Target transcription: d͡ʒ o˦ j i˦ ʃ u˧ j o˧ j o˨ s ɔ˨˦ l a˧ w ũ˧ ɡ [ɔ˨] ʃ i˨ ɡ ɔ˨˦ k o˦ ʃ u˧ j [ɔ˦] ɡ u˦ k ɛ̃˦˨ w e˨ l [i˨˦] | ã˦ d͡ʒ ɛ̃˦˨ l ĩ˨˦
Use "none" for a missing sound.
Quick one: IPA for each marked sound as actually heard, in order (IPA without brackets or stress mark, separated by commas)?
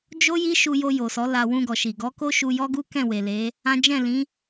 ɔ˨, ɔ˦, e˨˦